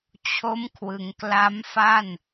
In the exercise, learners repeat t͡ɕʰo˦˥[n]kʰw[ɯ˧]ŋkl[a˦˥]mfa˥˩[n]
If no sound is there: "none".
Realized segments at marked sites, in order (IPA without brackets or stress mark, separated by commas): m, ɯ˩˦, a˦˥, n